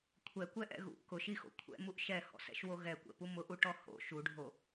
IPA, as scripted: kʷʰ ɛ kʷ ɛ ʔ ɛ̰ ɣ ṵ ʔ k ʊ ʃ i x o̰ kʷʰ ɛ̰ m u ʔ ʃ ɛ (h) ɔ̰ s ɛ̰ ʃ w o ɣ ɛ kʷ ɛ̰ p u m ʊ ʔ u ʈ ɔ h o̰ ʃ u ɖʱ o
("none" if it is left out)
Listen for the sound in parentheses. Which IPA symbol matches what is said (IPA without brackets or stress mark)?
h